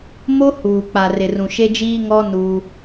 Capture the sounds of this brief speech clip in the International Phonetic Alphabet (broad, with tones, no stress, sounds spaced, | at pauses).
m o˦ h uː˨ k͡p a˨ r ɪ˨ r ũ˨ ʃ e˦ d͡ʒ iː˦ ŋ ɔ˦ n uː˦